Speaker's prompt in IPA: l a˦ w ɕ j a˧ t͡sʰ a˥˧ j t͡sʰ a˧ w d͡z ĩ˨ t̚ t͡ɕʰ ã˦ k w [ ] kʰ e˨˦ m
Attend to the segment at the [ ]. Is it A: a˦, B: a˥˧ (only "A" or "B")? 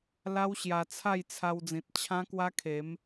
A